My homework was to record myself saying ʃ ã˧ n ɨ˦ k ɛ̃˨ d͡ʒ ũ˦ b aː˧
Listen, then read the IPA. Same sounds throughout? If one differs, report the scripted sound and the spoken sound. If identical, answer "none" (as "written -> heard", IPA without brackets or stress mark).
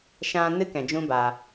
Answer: none